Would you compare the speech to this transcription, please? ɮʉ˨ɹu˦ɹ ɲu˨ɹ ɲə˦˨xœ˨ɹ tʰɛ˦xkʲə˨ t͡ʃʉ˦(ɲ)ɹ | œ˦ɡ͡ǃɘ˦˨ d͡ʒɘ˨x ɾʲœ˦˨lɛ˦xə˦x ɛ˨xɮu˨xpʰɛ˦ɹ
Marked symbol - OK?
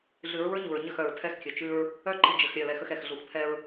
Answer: no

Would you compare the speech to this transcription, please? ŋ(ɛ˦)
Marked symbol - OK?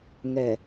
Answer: no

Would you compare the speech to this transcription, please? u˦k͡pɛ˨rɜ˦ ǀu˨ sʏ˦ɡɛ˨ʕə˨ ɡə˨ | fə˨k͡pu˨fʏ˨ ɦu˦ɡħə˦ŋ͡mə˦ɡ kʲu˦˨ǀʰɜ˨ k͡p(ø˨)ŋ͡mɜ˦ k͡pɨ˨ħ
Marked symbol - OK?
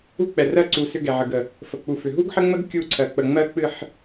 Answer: no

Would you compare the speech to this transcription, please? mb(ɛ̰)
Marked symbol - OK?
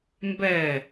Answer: no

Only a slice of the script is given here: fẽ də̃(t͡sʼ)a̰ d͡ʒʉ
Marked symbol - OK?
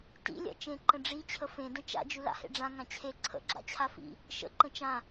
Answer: no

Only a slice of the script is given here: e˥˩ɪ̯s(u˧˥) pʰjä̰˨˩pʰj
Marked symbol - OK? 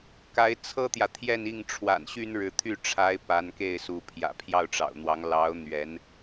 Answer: yes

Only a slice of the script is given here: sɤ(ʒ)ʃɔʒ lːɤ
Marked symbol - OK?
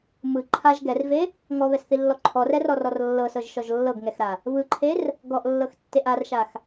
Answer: yes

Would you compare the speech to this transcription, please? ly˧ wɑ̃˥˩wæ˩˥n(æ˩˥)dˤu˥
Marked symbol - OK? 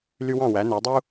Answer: yes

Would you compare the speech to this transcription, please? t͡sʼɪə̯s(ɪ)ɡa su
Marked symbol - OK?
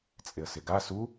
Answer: yes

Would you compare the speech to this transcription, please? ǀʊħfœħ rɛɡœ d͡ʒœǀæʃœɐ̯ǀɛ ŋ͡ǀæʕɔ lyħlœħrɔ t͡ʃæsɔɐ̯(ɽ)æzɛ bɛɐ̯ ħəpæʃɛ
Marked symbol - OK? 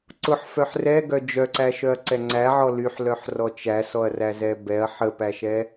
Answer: no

